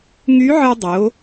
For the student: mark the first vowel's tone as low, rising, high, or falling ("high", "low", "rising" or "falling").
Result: rising